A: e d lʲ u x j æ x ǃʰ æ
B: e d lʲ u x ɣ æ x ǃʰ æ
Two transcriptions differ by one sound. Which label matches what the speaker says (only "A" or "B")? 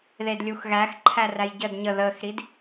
B